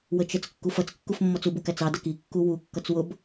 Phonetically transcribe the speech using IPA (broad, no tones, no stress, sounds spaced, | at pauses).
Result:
w ə t͡ʃ ə t͡s kː u f ʌ t͡s kː u f mː ɔ t͡s u b u k æ t͡s ɑ d ə k i kː u w u kː ʌ t͡s w ʊ b